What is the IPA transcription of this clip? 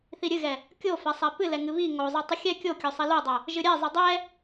θiɾʲɨɣɛ | kʲofɛsˤɛ pɨlɛ ŋɨβi ŋozˤɨ tˤɨxʲɛ kʲokʲo sˤilodˤo | ʒɨɾʲɛ zˤɨdˤɛ

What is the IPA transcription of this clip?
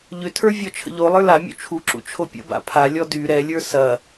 ʎʏtʰə˞ vʲɔt͡ʃʰə̰ʎolˠə˞ lamʲṵ t͡ʃʰuǁṵ t͡ʃʰopʲə̰ba̰ pʰalʲɔ dy ɾɛlʲə˞ sɐ

